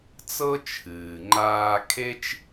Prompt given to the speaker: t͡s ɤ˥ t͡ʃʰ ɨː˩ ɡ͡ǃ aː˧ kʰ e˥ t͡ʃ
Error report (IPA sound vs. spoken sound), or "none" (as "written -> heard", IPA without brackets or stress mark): ɡ͡ǃ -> ŋ͡ǃ